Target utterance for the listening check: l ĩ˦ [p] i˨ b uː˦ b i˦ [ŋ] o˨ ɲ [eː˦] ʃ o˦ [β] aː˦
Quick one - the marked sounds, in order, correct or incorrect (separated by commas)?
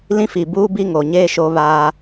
incorrect, correct, correct, correct